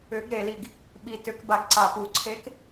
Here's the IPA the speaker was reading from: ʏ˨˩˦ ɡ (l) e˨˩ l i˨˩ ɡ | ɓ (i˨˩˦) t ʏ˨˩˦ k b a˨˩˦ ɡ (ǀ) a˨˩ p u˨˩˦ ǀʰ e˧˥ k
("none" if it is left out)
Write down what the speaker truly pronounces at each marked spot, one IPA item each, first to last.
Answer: ɾ, i˨˩, ǀ

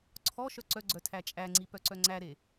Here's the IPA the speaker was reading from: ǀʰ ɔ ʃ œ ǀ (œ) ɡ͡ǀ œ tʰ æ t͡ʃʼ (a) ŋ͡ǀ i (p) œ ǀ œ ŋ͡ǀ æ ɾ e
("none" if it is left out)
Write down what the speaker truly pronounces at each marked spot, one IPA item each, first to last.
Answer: œ, æ, p

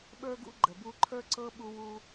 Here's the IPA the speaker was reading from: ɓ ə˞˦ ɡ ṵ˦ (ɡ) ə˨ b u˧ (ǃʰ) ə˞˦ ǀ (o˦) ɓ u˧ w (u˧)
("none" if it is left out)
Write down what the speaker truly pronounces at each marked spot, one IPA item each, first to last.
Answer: ɡ͡ǃ, ǃʰ, ɤ˦, u˧

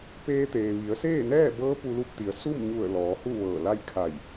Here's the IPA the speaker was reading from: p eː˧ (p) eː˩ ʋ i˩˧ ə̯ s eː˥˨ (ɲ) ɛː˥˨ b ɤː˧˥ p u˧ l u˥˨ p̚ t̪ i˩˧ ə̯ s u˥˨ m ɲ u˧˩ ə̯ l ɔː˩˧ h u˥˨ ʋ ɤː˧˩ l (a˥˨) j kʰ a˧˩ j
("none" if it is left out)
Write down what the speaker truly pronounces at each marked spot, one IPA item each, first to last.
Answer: t̪, n, a˥˨

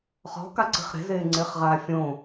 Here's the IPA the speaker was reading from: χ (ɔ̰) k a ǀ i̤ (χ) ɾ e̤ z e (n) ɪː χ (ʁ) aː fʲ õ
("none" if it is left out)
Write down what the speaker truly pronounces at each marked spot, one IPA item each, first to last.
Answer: ɔ̤, χ, ŋ͡ǀ, ʁ

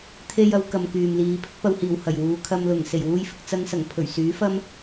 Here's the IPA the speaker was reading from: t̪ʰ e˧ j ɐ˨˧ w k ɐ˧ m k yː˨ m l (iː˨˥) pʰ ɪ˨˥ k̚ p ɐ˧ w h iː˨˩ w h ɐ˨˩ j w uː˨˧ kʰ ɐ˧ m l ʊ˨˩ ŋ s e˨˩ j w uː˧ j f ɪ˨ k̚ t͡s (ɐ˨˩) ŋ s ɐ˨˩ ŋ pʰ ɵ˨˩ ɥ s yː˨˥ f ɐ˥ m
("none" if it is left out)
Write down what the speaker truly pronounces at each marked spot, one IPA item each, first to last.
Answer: iː˨˧, ɐ˧

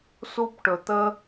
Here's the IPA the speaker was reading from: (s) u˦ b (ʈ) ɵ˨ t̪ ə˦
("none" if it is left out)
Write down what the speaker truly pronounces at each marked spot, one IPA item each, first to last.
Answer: s, ʈ

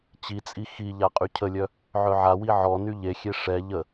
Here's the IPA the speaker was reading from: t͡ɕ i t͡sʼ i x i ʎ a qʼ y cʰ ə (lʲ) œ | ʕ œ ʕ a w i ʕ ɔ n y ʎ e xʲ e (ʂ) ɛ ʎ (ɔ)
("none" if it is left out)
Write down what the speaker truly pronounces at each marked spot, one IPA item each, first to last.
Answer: lʲ, ʂ, ə

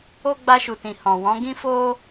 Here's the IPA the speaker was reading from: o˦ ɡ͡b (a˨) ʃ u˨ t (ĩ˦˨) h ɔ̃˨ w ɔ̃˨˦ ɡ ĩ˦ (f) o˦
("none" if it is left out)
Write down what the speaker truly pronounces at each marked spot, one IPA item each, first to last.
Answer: a˧, ĩ˨, f

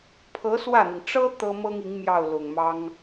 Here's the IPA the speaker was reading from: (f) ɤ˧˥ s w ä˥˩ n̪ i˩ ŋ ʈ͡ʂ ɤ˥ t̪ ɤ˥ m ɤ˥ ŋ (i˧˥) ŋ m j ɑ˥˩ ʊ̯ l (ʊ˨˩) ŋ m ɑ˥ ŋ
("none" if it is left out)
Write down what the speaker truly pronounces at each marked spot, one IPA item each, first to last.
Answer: pʰ, i˧˥, ʊ˨˩

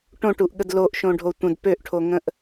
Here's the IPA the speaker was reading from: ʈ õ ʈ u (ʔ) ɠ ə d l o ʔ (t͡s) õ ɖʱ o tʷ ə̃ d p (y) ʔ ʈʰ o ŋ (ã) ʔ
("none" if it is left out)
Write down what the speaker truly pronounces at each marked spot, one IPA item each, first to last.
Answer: ʔ, ʃ, ø, ə̃

